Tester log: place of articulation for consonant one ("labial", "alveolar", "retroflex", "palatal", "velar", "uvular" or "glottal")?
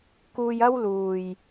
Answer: velar